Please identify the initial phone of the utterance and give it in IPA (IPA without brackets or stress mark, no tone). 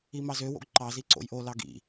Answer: i